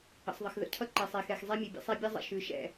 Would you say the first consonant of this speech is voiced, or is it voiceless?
voiceless